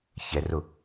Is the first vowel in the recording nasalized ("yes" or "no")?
no